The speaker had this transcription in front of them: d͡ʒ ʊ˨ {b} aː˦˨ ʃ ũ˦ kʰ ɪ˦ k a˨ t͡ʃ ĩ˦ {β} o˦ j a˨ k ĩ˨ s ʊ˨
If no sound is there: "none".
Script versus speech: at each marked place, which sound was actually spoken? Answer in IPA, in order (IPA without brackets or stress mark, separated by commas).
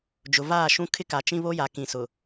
v, β